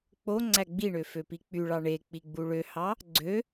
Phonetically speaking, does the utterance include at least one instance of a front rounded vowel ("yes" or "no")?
yes